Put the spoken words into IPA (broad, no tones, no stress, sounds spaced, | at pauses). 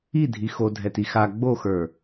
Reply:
i dʱ i x o dʱ ɛ t i x a ɡ͡b o x ə˞